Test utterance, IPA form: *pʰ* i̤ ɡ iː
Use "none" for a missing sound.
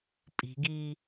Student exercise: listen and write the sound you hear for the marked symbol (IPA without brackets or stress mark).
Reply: pʼ